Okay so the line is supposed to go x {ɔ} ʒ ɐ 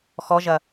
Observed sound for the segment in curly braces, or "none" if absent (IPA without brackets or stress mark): ɔ